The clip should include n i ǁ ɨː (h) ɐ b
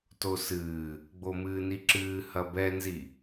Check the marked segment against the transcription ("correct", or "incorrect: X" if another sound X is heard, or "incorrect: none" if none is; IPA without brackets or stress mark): correct